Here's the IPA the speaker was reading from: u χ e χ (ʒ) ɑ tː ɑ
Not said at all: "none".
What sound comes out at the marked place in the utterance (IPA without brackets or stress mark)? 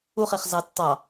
z